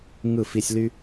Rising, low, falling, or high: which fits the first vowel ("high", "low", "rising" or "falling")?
falling